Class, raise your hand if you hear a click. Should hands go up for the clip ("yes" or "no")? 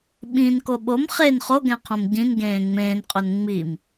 no